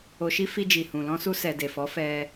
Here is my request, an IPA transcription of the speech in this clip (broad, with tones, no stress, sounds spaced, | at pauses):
o˧ ʃ i˦ f i˧ d͡ʒ i˨ h ũ˨ l ɔ̃˧ s u˧ s ɛ˨ d e˨ f ɔ˨˦ f ɛ˧